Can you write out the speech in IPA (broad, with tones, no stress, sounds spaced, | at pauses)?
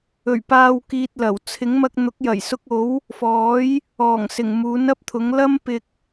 ɵ˨˩ ɥ p aː˨ w k iː˧ t̚ l ɐ˨˩ w t͡sʰ ɪ˨˥ ŋ m ɐ˧ k̚ n̪ ʊ˨˥ k̚ j ɐ˨˩ j s ʊ˧ k̚ o˨˥ w | f ɔː˨˥ j | ɔː˨˩ ŋ s ɪ˨˩ ŋ m uː˨˥ n ɐ˥ p̚ t̪ʰ ʊ˨˥ ŋ l ɐ˥ m p ɪ˧ k̚